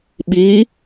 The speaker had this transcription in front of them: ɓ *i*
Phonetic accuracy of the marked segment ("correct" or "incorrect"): correct